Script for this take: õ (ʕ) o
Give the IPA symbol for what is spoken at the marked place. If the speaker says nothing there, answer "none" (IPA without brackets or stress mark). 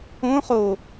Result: χ